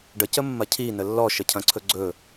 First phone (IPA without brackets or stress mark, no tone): ɖ